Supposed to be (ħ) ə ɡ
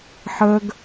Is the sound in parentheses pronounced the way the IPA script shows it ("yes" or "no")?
yes